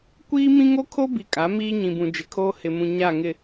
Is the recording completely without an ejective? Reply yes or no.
no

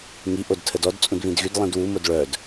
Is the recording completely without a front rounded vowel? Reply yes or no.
no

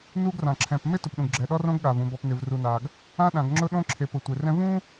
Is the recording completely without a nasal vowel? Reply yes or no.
no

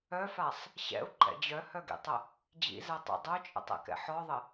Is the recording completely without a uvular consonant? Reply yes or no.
yes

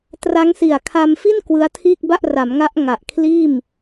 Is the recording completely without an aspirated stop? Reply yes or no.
no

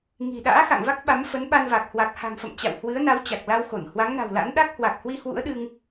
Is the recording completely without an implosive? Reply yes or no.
no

